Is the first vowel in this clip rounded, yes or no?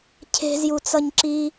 no